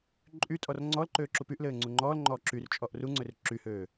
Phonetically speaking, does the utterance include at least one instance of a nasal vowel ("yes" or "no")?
no